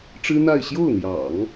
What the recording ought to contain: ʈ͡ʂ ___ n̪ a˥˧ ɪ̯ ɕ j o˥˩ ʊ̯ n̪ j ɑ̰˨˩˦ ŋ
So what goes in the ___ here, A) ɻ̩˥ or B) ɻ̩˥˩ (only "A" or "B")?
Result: A